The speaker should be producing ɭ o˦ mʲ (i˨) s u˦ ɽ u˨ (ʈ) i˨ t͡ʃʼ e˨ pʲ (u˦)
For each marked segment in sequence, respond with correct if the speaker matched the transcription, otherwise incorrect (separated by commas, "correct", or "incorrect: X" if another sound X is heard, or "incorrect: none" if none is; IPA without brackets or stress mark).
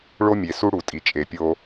incorrect: e˨, incorrect: tʼ, incorrect: o˦